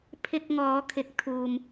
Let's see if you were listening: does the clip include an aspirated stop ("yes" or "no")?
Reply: yes